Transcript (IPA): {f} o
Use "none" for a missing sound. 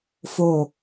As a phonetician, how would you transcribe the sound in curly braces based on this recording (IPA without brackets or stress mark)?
f